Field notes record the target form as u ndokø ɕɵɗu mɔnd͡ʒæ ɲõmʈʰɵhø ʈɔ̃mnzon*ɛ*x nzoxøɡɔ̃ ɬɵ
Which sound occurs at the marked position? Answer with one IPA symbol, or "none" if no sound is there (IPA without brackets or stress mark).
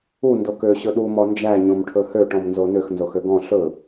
ø